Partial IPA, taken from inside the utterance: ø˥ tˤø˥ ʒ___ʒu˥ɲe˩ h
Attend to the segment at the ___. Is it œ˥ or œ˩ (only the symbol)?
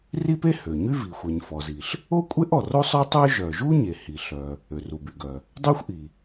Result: œ˩